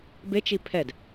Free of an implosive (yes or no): yes